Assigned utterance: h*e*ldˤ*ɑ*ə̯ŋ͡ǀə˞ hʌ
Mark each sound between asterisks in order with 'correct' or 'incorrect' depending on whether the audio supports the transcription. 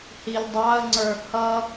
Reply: incorrect: i, correct

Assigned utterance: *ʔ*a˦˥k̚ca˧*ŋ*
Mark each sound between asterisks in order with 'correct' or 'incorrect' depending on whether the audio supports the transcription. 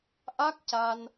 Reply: correct, incorrect: n

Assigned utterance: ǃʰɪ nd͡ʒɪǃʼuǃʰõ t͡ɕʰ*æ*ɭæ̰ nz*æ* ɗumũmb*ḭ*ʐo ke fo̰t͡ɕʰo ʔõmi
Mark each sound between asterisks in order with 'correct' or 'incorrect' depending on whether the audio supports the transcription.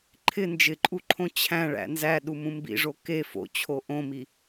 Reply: incorrect: æ̃, correct, correct

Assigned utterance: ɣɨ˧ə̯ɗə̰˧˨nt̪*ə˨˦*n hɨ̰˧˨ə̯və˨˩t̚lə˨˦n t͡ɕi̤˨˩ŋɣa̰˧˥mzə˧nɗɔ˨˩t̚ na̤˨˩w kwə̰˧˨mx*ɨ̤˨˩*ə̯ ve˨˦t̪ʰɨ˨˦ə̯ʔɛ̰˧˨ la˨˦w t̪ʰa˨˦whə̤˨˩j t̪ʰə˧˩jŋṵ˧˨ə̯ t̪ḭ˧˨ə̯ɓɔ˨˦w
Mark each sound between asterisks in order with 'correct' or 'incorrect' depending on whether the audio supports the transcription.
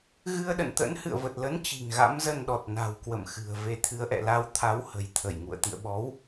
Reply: incorrect: ə̰˧˥, correct

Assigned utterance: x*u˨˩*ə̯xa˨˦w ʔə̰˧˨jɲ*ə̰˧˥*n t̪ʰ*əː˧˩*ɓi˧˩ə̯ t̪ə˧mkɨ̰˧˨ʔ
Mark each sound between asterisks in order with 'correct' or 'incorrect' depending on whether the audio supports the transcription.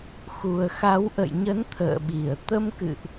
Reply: correct, incorrect: ə˨˦, incorrect: ə̰ː˧˨

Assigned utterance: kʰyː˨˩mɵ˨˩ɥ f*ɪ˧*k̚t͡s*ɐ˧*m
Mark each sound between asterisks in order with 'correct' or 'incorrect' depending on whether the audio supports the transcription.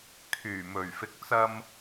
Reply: incorrect: ɪ˨˥, correct

